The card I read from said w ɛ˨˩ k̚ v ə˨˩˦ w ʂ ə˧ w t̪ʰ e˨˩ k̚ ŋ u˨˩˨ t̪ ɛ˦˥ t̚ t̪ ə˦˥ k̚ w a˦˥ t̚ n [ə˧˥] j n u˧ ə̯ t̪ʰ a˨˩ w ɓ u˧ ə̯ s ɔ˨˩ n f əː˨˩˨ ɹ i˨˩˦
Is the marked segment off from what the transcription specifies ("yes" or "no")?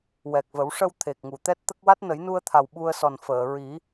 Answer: yes